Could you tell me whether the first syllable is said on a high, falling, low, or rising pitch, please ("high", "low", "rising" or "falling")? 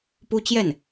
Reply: high